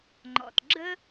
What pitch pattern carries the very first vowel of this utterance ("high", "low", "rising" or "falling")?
low